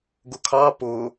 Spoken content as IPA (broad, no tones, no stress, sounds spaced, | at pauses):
ɡ ʊ kʰ ɑ p ʊ